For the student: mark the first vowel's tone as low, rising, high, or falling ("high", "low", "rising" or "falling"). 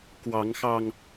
rising